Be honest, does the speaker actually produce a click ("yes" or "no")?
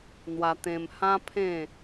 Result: no